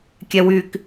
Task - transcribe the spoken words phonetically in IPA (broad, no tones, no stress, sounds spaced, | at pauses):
kʲ ɛ w y k